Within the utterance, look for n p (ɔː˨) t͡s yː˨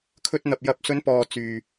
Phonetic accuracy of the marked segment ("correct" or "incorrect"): correct